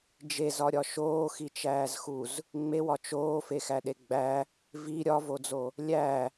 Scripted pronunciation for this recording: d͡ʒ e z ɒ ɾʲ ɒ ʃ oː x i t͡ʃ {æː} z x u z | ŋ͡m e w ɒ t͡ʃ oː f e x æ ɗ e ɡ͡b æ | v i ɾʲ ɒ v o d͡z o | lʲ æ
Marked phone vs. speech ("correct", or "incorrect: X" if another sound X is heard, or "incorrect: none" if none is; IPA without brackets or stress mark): correct